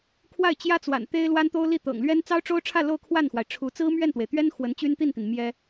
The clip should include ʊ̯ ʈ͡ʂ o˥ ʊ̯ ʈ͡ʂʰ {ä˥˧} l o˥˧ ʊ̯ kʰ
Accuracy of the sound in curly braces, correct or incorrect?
correct